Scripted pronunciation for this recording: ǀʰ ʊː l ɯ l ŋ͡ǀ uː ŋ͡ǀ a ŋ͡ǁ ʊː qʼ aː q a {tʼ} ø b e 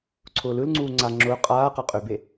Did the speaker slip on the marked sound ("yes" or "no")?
yes